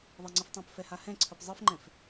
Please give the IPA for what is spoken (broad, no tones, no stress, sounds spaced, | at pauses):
ðˤ e ŋ͡ǀ i f tˤ õ p f ɛ h a h ɛ̃ ǀʰ ɯ p zˤ ɯ f ŋ͡ǃ ɛ̃ f